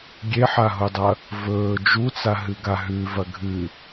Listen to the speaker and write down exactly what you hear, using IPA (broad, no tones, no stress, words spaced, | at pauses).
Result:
ɡʲeħaɦudˤɐ | vɵː d͡ʒut͡saɦɨɡa ɦʉvɐ ɡʱɨ